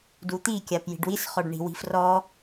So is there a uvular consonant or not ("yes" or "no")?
yes